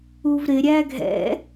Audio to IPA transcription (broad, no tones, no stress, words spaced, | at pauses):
uvɾɪ ɾʲæɡʱɛ̰